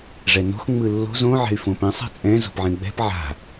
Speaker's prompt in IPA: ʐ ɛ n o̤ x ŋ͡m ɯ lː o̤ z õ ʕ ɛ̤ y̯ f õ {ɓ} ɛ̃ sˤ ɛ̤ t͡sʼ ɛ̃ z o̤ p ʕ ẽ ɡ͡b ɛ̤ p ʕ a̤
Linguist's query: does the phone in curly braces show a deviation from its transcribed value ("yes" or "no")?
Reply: yes